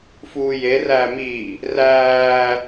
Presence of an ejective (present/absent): absent